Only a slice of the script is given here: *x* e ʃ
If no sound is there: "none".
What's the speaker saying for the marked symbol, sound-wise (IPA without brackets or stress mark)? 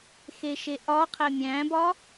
x